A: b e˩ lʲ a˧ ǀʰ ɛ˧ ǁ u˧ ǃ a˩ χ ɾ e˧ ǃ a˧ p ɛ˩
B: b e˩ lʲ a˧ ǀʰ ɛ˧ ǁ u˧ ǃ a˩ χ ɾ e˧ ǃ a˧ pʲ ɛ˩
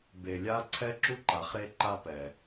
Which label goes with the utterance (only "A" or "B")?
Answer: A